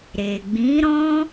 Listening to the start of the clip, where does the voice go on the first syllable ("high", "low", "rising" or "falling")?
low